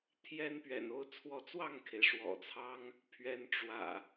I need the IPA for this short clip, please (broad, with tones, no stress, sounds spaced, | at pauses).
t̪ʰ j ɛ˦ n p ɥ ɛ̰˨˩ n o˦ ʊ̯ t͡sʰ w ɔ˨˦ t͡s w ɑ˥˨ ŋ kʰ e˩ ɪ̯ ʂ w ɔ̰˨˩ t͡sʰ ɑ˦ ŋ | pʰ ɥ ɛ˨˦ n ʈ͡ʂ w ä̰˨˩